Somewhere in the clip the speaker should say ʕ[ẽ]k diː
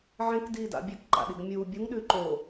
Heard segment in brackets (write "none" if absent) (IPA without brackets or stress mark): ẽ